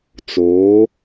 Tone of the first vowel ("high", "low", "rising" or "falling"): rising